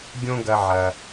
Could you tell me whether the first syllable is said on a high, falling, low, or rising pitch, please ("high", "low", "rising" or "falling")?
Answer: high